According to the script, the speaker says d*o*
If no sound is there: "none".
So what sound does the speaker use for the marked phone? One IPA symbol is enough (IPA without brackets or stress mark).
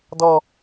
ɔ